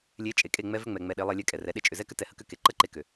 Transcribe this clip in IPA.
lʲe˨˦ t͡ʃʼe˨kʼe˦˨ ŋ͡mɛ˧vʏ˧ ŋ͡mɛ˨ŋ͡mɛ˨ ɗe˨˦lˠɛ˧lʲɛ˧ kʼɛ˨rɛ˨˦ ɗe˧t͡ʃʼʏ˨zɛ˦kʏ˦ tɛ˧hə˦kʏ˦ ke˨ ǃə˦ǃe˧kʏ˨

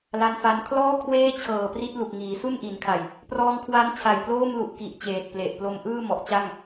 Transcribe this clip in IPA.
la˧nfa˧n kʰlɔː˥˩ kʰweː˥˩t͡ɕʰɤː˨˩pri˦˥t̚lu˨˩k̚ ŋiː˩˦su˥˩nʔi˩˦nkʰa˨˩j | prɔː˧ŋkʰwa˦˥nt͡ɕʰa˨˩jploː˥˩m lu˨˩ʔki˨˩ʔ t͡ɕeː˨˩t̚ple˨˩ʔ plo˧mʔɯː˥˩ mɔ˨˩ʔt͡ɕa˥˩ŋ

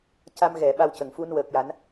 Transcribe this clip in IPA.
ca˧mɣɛ˨˩˨ ɓa˧wcə˨˩˨ŋ fu˧nwəː˨˩k̚ja˨˩˦n

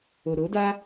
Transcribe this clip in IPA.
o˨ɾo˨˦da˦

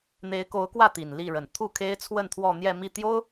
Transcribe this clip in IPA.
n̪e˧˥ɪ̯ko˧˥ʊ̯kwä˥˩ t̪i˨˩nli˥˩ɻə˨˩n t̪ʰu˥˩ kʰe˥ɪ̯t͡sʰwə˥˧nt̪ʰwɔ˥˧n̪jɛ˥˧ mi˥˩t̪jo˥ʊ̯

